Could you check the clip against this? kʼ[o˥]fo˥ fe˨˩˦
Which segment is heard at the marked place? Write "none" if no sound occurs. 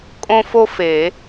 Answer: õ˥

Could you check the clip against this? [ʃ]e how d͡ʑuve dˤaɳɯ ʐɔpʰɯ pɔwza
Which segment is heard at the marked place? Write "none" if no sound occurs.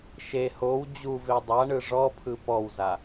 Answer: ʃ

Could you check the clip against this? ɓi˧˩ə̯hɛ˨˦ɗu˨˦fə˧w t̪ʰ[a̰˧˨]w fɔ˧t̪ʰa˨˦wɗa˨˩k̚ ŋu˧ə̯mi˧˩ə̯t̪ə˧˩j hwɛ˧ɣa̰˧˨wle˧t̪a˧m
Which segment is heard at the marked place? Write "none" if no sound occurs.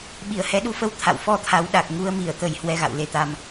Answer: a̰˧˨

